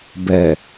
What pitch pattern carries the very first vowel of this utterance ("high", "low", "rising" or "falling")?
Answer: low